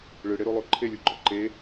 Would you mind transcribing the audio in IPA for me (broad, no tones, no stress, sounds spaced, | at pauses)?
ɭ ɯ ɽ e ɾ o lˠ o ǃʰ e lʲ u ɡ͡ǃ ɔ ǃ e